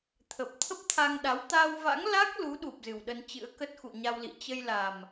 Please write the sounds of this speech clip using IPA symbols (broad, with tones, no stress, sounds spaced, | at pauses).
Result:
t̪ʰ ə˨˩ p̚ t̪ʰ ə˦˥ p̚ t̪ʰ a˧ ŋ ɗ a˨˦ w t̪ a˧ w v a̰˧˥ ŋ l a˦˥ k̚ l u˨˦ ɗ u˨˩ p̚ z ɨ˨˩ w ɗ ə˧ n t͡ɕ ɨ̰˧˥ ə̯ k ə˦˥ t̚ x ṵ˧˨ ɲ a˧ w l ḭ˧˨ t͡ɕ ə˧ j l a˨˩ m